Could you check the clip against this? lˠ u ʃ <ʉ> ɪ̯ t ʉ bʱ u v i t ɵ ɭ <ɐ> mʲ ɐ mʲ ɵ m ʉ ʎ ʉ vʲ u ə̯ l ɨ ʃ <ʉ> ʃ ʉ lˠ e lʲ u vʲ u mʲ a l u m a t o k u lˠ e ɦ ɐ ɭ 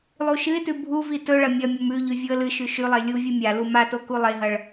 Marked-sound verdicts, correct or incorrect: incorrect: ɨ, correct, correct

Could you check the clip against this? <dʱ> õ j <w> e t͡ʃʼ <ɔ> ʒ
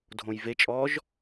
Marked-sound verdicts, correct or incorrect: correct, incorrect: v, correct

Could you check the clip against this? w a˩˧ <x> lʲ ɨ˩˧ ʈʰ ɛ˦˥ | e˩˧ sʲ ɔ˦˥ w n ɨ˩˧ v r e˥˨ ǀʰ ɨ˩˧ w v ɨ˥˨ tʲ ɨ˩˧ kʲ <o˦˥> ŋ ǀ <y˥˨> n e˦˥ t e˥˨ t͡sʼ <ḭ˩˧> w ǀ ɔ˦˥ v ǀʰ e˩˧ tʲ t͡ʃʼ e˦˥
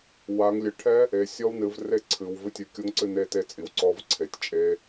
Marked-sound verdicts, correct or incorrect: incorrect: ŋ, correct, incorrect: ɨ˥˨, incorrect: i˩˧

